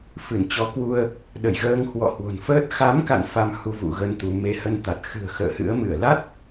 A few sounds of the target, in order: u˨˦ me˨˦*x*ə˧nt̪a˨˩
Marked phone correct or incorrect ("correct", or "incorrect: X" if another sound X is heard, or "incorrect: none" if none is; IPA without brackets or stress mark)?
incorrect: h